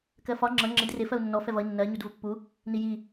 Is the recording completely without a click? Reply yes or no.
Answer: no